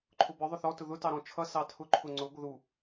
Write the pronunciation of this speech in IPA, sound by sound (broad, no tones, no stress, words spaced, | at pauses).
ǃʰʊbə˞ ðˤʊθɔ tʊðʊ tɑɾɔ̃t͡ʃʰʌ sɑtʰʊ ǃʰʊŋ͡ǀʊ ɡʷəðu